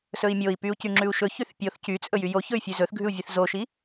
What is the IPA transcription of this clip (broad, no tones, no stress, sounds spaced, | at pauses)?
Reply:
s ɵ i̯ mʲ o i̯ p y u̯ c y ŋ͡ǁ ʉ u̯ ʃ ɵ ç y θ pʲ o θ c y t͡sʼ ɵ j y j o ç ɵ y̯ fʲ ʉ z ɵ θ ɡʱ ʉ u̯ vʲ ʉ θ z o ʃ i